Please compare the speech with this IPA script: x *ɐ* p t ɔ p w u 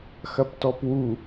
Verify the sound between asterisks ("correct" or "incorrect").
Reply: correct